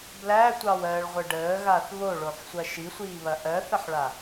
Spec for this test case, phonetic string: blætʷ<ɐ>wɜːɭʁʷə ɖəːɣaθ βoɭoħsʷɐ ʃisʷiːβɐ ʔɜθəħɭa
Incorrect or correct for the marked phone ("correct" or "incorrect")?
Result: incorrect